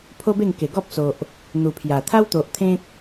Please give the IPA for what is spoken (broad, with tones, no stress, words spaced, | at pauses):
pʰo˦be˥˧ŋke˨˩ ɡɔ˦p̚so˨ʔ | n̪u˨˩pʰja˨˩ t̪ʰa˦wt̪o˨ʔ t̪ʰẽ˦k̚